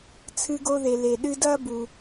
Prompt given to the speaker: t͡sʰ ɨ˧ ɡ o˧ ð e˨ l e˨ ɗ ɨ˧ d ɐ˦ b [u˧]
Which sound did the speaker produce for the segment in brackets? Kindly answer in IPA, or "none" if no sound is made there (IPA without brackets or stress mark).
u˧